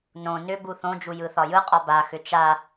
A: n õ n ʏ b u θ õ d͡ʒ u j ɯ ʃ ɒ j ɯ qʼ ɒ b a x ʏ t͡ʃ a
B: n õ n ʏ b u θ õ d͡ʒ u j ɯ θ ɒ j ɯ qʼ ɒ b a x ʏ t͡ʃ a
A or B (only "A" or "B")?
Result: B